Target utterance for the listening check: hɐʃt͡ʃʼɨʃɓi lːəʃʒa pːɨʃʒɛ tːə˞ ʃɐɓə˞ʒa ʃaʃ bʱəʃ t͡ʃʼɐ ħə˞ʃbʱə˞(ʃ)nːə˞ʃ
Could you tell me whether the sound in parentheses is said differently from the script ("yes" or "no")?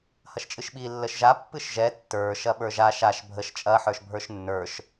no